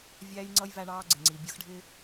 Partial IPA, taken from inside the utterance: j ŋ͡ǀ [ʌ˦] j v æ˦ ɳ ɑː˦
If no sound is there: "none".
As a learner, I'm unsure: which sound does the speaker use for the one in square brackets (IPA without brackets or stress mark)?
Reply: ʌ˦